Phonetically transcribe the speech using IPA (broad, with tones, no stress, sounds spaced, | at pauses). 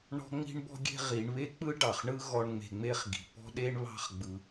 ɳ ɔ̤˦ ŋ͡m i̤˦ ɳ b ɔ̤˦ ɡʲ e̤˦ ʁ i˨˦ ɳ β e˦ k͡p ɯ˦ ɖ ɑ˨ χ ɳ ɯ˦ ɣ ɔ˧ ɳ ŋ͡m e̤˧ ŋ͡m e˦ χ ɡ i̤˨ p ɔ̤˦ ɗ e˦ ɳ β ɑ̤˦ χ ɡ͡b ɯ˧